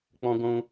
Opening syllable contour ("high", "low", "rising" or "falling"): high